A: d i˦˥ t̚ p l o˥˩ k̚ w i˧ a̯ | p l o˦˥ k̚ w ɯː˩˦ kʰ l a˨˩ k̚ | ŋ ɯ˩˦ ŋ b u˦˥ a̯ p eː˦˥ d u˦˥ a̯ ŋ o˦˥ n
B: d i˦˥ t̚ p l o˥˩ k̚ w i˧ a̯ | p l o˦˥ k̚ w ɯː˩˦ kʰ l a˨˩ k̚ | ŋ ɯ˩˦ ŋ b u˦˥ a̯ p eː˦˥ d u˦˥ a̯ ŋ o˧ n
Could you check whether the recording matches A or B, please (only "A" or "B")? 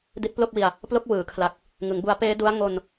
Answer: B